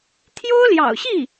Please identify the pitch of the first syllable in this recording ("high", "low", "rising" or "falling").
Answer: high